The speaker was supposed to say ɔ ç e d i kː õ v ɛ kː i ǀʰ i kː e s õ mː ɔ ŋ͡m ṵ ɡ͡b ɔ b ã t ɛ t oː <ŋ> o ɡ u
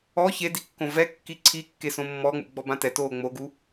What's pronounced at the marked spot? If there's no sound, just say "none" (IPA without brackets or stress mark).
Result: ŋ͡m